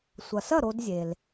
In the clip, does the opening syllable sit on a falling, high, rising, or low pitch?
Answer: low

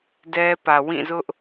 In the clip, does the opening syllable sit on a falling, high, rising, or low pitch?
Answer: high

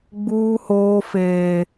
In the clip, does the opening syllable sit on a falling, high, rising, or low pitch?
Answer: high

